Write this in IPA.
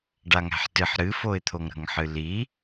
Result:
ɖaŋæ̤ħtɨħ ɾɨfoɪ̯t̪ʰoŋ ɾə̤ŋħɨli

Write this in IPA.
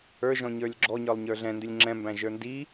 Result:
ə˞ ʒɔ̃ɲə˞lʲɡ͡ǁɔɲə˞lˠ ɲə˞ɮɛ̃ndɪlʲ ŋ͡ǁɛ̃mbæ̃ ʒə˞ndi

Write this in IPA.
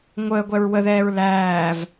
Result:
ŋʷəːɡʷɛɹ wəðɛːɹ læːv

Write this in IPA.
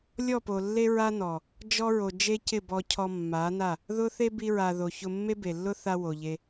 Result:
lʲɔ˦˨po˨lːe˦ ɹa˦nɔ˨ | d͡ʒɔ˧ɹo˨ d͡ʒe˦cɪ˦˨ bɔ˧cʰɔ˧ mːa˨˦na˦˨ | ðʊ˦ θe˦bi˧ɹa˨ ðo˨çʊ˧ mːe˦be˨lːʊ˦θa˧ wo˨ʎe˧

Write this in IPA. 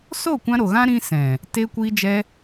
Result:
so˦˨kʷã˧ɾo˨ ɣã˦ɾĩ˧ sɛ̃˨ | te˧kʷi˧d͡ʒɛ˧

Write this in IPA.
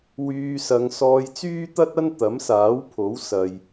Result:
wyː˧ sɐ˨˧ŋ sɔː˧jt͡syː˥t̪ɐ˥t̚ɐ˥n t̪ɐ˨˥msaː˨˥wpʰo˨˥w sɐ˨j

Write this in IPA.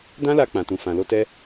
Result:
dã˦la˧ k͡pã˨tũ˨ fã˨lo˧tɛ˦

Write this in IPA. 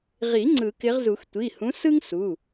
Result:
ʁi˨˩˦ ŋ͡ǀɯ˨˩˦kɪ˨˦ʁzu˨˩˦x tʷi˩˧˩hũ˨˦ sɯ˥ŋsu˩˧˩

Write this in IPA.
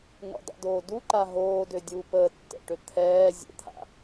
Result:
ŋə̰dˤɛ̰doː duǃa ɦoːdødʲuː pəːtːɛ̰ʈø t̪ʰɛː zʲə̰t̪ʰa̰

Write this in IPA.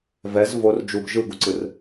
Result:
vɛz vor d͡ʒuɡ ʒɯɡuǀɯr

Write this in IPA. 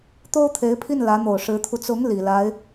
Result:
t̪o˥ʊ̯t̪ʰe˧˥ɪ̯pʰi˥˩n lä˧˥n̪o˨˩ʊ̯ʂɻ̩˧˥t̪ʰu˧ t͡sʊ˧˥ŋ li˨˩la˧˥ɪ̯

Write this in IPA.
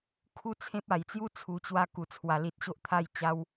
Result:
kʰu˦ t͡sʰẽ˦p̚a˨˩jt͡sju˦ t͡sʰu˨˩t͡ɕwa˧ ku˨˩t͡sʰwa˨˩li˨t̚ɕo˦ʔ t̪ʰa˧j t͡ɕa˧w

